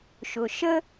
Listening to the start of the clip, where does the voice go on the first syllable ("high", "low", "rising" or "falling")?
low